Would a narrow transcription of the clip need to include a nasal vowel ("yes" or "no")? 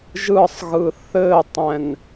yes